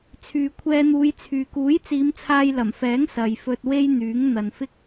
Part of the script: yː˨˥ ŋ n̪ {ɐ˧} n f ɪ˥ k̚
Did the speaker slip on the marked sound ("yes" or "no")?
yes